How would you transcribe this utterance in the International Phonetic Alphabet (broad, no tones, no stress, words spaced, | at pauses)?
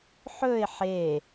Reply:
ħɵɪ̯ ħe